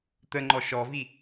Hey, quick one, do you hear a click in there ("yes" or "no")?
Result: yes